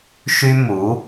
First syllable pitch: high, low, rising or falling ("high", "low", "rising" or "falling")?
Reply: high